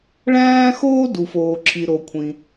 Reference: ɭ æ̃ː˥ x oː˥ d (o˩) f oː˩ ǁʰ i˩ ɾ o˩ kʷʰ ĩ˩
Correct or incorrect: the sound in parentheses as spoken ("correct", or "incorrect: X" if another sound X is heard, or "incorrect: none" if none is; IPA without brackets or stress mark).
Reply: incorrect: u˩